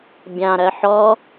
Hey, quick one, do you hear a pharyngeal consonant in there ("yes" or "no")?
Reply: yes